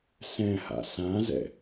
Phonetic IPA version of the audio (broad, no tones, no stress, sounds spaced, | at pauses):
s ɛ̃ h a̰ s ã z ɛ̰